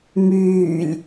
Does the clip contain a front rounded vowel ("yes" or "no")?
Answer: yes